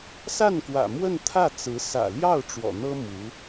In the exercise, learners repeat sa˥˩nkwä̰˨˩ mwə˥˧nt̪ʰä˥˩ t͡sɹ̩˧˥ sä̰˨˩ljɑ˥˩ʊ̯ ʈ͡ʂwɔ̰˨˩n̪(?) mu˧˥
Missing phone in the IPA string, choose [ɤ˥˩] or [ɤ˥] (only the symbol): ɤ˥